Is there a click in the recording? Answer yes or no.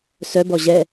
no